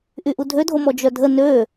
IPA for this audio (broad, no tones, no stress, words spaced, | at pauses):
ʔyʔudʱødʱo mɔd͡ʒœdʱə nø